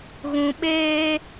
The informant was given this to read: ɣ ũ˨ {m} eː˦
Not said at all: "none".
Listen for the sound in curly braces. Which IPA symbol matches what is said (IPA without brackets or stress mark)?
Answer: ɓ